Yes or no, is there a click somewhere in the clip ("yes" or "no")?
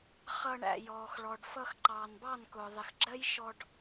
yes